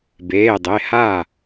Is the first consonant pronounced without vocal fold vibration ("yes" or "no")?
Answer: no